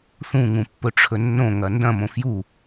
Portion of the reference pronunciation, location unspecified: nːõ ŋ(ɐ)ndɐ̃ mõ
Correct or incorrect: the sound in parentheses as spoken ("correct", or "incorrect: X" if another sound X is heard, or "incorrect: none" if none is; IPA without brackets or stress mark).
correct